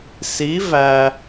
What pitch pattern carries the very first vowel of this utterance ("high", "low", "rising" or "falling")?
rising